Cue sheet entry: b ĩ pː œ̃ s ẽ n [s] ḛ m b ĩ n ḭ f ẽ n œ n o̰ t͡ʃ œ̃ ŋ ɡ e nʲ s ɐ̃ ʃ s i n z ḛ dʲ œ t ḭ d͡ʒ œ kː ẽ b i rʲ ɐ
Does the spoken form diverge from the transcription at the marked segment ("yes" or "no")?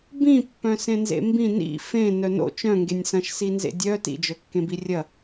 yes